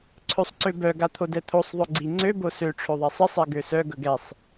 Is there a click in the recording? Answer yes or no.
yes